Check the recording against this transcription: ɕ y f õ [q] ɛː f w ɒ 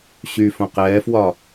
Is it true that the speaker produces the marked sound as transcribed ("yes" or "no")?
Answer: yes